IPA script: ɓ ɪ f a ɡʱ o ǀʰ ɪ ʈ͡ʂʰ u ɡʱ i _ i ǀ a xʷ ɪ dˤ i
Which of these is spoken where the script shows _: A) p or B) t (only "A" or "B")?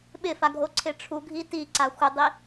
B